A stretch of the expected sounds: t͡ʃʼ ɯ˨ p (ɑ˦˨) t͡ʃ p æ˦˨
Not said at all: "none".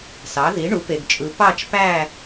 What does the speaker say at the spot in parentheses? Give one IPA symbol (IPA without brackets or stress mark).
ɑ˦˨